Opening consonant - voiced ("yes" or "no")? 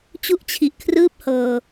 no